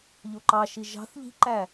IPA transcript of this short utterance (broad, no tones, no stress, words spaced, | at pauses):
ʎoǃɑʃi ʒɑ̤θ ʎi̤ǃæ